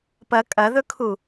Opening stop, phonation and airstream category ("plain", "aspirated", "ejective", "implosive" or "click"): plain